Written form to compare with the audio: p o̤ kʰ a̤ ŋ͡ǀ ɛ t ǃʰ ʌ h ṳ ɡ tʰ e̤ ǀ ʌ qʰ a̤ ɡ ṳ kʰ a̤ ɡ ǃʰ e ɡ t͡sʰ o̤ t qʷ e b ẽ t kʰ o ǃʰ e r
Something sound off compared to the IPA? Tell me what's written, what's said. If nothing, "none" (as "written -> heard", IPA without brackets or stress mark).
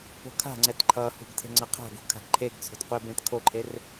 ǀ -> ŋ͡ǀ